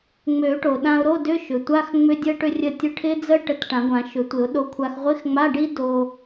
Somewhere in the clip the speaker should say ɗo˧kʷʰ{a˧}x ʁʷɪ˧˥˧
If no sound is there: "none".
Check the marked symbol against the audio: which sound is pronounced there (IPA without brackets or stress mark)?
a˧